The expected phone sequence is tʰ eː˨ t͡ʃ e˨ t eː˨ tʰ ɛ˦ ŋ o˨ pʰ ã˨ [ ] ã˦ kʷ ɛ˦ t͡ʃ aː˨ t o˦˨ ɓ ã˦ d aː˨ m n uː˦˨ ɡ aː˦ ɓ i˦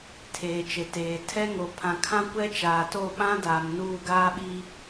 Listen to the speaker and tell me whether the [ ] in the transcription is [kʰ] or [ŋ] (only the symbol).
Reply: kʰ